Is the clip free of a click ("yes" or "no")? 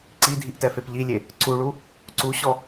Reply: no